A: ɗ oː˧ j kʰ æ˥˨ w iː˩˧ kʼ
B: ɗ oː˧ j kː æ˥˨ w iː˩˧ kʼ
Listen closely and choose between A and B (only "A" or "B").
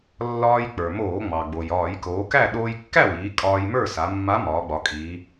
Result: B